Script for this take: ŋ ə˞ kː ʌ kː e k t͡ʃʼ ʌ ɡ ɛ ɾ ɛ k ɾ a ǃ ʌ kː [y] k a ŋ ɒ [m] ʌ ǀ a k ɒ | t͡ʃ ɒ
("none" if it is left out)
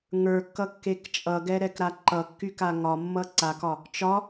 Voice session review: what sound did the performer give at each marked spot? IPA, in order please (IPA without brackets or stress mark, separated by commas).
y, mː